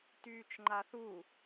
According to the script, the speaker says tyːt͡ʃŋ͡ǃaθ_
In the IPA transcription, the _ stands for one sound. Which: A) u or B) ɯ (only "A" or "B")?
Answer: A